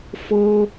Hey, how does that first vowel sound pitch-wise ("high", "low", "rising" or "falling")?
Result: high